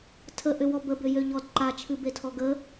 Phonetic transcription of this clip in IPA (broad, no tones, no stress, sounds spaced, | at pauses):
tʰ ə ʔ ʏ w ɔ b ə b ʏ j ø ʎ ɔ d ǃ a t͡ʃʰ ɨ b e tʰ ɔ ɡ ə